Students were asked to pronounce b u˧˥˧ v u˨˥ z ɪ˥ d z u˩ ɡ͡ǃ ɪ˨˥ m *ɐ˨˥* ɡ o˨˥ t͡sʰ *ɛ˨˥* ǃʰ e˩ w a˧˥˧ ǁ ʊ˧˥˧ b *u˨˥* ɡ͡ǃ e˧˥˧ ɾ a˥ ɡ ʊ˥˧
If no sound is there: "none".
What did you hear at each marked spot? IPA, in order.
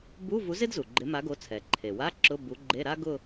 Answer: a˨˥, ɛ˩, u˨˥

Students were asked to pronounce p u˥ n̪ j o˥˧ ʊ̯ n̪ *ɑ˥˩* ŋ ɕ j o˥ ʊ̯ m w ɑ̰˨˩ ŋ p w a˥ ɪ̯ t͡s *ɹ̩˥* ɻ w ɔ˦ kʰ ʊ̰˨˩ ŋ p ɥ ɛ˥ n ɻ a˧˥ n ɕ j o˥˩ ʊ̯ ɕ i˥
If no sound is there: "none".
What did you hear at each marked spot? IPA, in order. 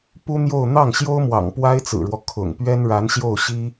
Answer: ɑ˥˩, ɹ̩˨˩

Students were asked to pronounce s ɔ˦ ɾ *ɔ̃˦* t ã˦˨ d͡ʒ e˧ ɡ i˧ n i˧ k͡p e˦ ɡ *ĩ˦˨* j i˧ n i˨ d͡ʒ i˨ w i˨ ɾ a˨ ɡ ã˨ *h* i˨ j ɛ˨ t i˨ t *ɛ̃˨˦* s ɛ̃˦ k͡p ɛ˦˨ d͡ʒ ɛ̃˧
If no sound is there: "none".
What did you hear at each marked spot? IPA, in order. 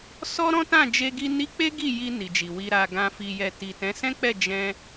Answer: ɔ̃˦, i˦˨, f, ɛ̃˨˦

